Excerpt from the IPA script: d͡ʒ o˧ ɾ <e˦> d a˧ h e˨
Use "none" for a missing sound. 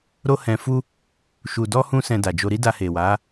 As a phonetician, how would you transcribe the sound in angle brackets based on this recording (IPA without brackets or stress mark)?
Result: i˦